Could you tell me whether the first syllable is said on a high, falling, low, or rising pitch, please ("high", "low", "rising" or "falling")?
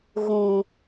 high